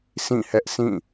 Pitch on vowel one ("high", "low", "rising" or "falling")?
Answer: falling